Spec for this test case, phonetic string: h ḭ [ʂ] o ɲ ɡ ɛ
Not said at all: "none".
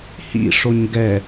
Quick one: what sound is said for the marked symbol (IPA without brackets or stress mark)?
ʂ